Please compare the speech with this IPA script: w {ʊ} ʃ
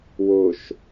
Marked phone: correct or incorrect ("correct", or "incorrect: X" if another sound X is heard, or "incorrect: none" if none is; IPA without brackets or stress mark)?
correct